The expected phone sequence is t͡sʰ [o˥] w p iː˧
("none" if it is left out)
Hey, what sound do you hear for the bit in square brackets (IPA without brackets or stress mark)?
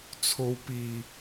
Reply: o˥